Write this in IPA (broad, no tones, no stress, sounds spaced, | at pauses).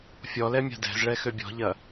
fʲ ɔ l ɛ mʲ a̤ d ɛ̤ z ɭ ɛ x ø bʲ ɔ̤ ʎ ɐ